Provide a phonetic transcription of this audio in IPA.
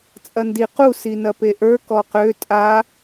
t͡sʼ ɐ n d i q u s i n ɐ p e ʔ ə˞ k ɔ q ø tʼ a

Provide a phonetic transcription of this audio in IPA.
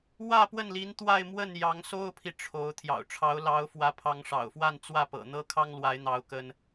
w ä˥˧ p w ə˥˩ n l i˧˥ n t̪ w a˥˧ ɪ̯ m w ə˥˩ n j ɑ˧˥ ŋ s o˥ ʊ̯ pʰ i˨ ʈ͡ʂʰ o˧˥ ʊ̯ t̪ʰ j ɑ̰˨˩ ʊ̯ ʈ͡ʂʰ ɑ˧˥ ʊ̯ l ɑ˧˥ ʊ̯ f w ä˧˥ pʰ ɑ˧˥ ŋ ʂ ɑ̰˨˩ ʊ̯ f w a˥˧ n t͡s w ä˥˩ p ɤ̰˨˩ n̪ ɤ˥ kʰ ɑ˥ ŋ l w a˧˥ ɪ̯ n̪ ɑ˧˥ ʊ̯ k ə˥ n

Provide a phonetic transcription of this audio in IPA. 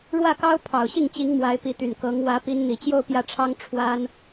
ɻ w ä˥˩ k ɑ˥ ʊ̯ pʰ ɑ˨˩ ʊ̯ ɕ i˥˩ ŋ t͡ɕ i˧˥ ŋ m w a˧˥ ɪ̯ p i˧˥ t̪ y˨˩ n k ɤ˧˥ ŋ w ä˧˥ p i˧˥ n n̪ i˨˩ t͡ɕ j o˥˧ ʊ̯ p j ä˥˩ ʈ͡ʂʰ ɑ˥ ŋ ʈ͡ʂʰ w a˥ n

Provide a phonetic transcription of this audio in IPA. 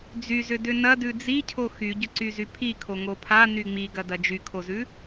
d͡z y z ʏ d ʏ n ɐ d ʉ d͡z i cʰ o x y ɟ ʏ ǀ y z y pʰ i kʰ o ŋ o pʰ a n y ŋ͡m i ɡ ɐ d ɐ d͡ʒ y kʰ o z ʉ

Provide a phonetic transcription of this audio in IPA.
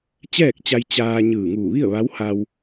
t͡ɕ ɛː˥˨ k̚ t͡ɕ a˧ j t͡ɕ aː˧ ɲ ɯː˧˩ ŋ uː˧˩ ʋ i˥˨ ə̯ ʋ a˧˥ w h a˧ w

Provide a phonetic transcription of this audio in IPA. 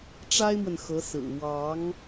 ʈ͡ʂ a˥ ɪ̯ m w ə˨ n x ɤ˧˥ s ɹ̩˨˩ w ɑ˧˥ ŋ

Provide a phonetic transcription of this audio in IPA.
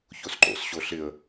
ç o s ǃ o̰ s ɕ o ɬ ɪ ə̯

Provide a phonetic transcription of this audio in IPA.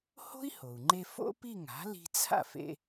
h o̤˥ i̯ h o˩ u̯ ŋ͡ǃ e˧ f o̰˥ p i˥˩ ŋ a̤˩˥ l i̤˧ t͡sʰ a̰˥˩ f ḛ˧

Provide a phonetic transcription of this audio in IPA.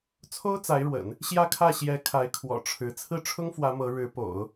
t͡sʰ o˥ ʊ̯ t͡s a˧˥ ɪ̯ ɻ w ə̰˨˩˦ n | ɕ j ä˥˧ kʰ ä˥˩ ɕ j ɛ˧˥ kʰ a˧˥ ɪ̯ kʰ w ɔ̰˨˩ ʈ͡ʂʰ ɻ̩˧˥ t͡sʰ ɹ̩˥˩ ʈ͡ʂʰ ʊ˥ ŋ f w ä˧˥ m ɤ˧˥ ɻ ɻ̩˧˥ p o̰˨˩˦ ʊ̯

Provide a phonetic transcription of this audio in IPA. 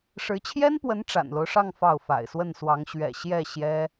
ʂ ɻ̩˧˥ t͡ɕʰ j ɛ˥ n p w ə˧˥ n ʈ͡ʂ a̰˨˩ n l o˦ ʊ̯ ʂ ɑ˥˧ ŋ f ɑ˥˩ ʊ̯ f a̰˨˩ ɪ̯ s w ə˥˩ n s w ɑ˧˥ ŋ ɕ ɥ ɛ̰˨˩ ɕ j ɛ˥˩ ɕ j ɛ˥

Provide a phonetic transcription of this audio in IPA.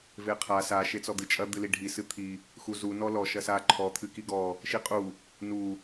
v e qʰ a s a ʃ e t͡s ɔ d̪ ɨ t͡ʃʼ ɐ d̪ ɨ l i ɖʱ i s ɨ t̪ʰ i | x u z u n ɔ l ɔ ʃ ɐ s a ǃʰ ɔ t̪ʰ ɨ k i ɡ ɔ | ʃ i qʼ u | n u

